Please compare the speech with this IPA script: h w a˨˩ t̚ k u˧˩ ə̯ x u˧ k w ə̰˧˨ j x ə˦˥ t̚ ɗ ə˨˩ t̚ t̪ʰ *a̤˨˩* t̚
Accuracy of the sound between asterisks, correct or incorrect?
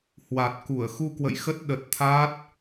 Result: incorrect: a˦˥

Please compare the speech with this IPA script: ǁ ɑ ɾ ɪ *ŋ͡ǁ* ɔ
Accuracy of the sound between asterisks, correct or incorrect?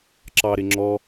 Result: correct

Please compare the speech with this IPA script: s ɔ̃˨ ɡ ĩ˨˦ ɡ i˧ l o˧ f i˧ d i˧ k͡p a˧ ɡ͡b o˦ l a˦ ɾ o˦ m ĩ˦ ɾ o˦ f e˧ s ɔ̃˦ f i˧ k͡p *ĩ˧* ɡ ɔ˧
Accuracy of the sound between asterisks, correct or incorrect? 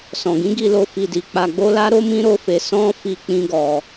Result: incorrect: ĩ˦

